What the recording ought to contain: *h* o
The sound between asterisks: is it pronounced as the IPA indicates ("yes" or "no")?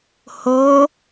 yes